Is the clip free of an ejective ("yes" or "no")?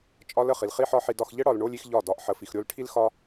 no